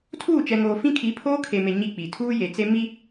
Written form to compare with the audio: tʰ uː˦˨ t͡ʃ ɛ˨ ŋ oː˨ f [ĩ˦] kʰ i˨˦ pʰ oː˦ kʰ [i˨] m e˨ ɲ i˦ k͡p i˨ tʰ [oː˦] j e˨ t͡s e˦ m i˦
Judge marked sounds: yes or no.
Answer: yes, no, no

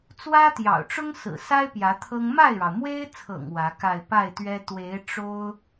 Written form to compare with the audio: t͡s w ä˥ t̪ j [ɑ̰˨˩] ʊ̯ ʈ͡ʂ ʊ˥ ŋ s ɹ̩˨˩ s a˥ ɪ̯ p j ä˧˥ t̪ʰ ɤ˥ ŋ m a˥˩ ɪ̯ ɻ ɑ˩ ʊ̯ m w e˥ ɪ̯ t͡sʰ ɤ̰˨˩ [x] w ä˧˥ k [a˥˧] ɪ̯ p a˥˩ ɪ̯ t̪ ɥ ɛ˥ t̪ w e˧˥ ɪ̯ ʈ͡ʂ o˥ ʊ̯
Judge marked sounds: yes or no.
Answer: yes, no, yes

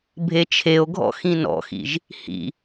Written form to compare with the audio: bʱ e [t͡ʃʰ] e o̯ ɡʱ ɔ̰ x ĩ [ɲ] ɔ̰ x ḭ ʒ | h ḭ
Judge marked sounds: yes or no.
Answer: yes, no

